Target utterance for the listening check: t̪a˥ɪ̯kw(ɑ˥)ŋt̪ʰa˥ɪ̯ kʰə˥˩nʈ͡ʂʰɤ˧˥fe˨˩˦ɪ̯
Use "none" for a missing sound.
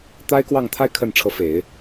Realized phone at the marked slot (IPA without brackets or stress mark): ɑ˥˩